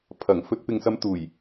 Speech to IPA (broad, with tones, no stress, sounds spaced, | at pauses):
pʰ ɐ˨˩ ŋ f ɵ˧ t̚ p ɪ˨ ŋ s ɐ˧ m t̪ uː˨˩ j